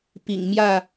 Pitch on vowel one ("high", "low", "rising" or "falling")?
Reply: low